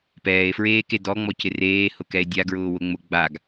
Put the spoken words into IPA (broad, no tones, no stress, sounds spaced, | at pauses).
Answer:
p ɛː e̯ f ɹ eː k e d ɔ ŋ͡m ɔ c ɪ r eː h ʊ k ɛ e̯ dʲ a ɡ ɹ ʊː w ʊ ŋ͡m ʊ ɡ͡b a ɡ